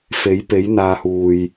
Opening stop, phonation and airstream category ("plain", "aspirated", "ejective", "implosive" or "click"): plain